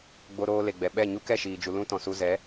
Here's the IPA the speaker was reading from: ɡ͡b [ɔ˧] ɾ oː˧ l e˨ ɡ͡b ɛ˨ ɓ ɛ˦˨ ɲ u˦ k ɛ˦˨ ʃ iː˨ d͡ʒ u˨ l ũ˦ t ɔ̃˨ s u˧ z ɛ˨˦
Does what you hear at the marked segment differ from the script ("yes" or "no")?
yes